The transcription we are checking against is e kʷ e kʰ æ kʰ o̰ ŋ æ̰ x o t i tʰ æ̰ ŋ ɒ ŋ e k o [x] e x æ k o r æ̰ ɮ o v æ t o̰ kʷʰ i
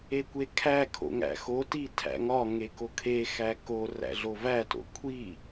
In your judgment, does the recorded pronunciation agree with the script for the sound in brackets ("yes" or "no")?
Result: no